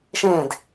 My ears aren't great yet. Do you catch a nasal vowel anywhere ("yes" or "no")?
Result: yes